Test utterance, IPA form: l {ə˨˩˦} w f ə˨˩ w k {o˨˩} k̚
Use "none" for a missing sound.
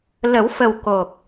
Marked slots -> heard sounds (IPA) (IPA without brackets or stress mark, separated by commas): ə˨˩˦, o˨˩